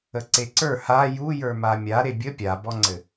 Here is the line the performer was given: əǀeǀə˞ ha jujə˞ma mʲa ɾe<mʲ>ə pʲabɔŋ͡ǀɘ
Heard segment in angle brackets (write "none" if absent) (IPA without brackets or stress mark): bʲ